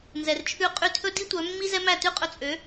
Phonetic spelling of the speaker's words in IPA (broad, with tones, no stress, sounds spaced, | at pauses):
n z ɛ˩ r t͡ʃʰ ʉ˥˩ qʼ y˥˩ tʰ ɵ˥ d i˥ tʷ œ˩˥ mː i˥ z ɛ˥ m æ˥˩ t ʉ˥ qʼ ɵ˧ t͡sʼ ø˩˥